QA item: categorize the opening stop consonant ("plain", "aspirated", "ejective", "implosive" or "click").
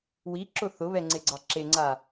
click